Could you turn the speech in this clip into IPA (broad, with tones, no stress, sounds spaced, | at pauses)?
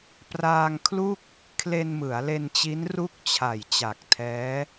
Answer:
p r aː˧ ŋ kʰ l u˥˩ k̚ | kʰ l e˧ n m ɯ˩˦ a̯ l e˧ n t͡ɕ i˦˥ n r u˥˩ k̚ t͡ɕʰ a˨˩ j t͡ɕ a˨˩ k̚ tʰ ɛː˦˥